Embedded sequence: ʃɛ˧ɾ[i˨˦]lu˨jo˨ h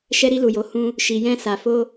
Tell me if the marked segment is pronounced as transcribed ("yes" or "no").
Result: no